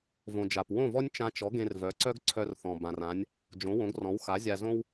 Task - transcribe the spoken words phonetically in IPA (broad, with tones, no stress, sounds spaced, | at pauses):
v õ˩ d͡ʒ a˩ p w õ˥˩ v ɔ˥ nʲ t͡ʃ ã˧ t͡ʃ ɔ˩˥ ɡ ẽ˧ r v œ˩˥ ǀ œ˥ ɡ ǀʰ œ˧ r θ ɔ̃˩ b ã˩ r ã˩˥ nʲ | d͡ʒ õ˩˥ w õ˩˥ ɡ r ɔ̃˩˥ w x a˩˥ zʲ a˧ z õ˥ w